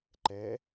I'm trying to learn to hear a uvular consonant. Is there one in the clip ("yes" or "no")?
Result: no